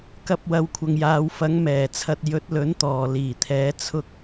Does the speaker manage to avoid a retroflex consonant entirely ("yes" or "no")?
yes